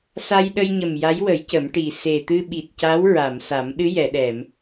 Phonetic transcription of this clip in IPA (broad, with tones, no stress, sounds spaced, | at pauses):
s a˧ j ɗ ə˧ j ɲ ə˨˩ m j a˧˥ j w ə˨˩˦ j c ə˨˩˦ m ʈ i˨˩ s e˨˩ t̪ ɨ˧ ɓ i˨˩ t̚ c a˧˥ w ɹ a˨˩˨ m s a˨˩˦ m ɗ ɨ˧˥ j ɛ˨˩˨ ɗ ɛ˨˩˨ m